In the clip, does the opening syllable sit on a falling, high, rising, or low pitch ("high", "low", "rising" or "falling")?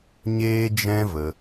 high